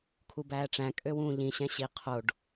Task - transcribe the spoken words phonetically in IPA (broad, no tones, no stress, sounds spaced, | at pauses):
kʰ u b æː ʈ͡ʂ æ̃ kʼ ø w ũː ʎ ĩ ɕ ɛ̃ ɕ i qʰ o ɖ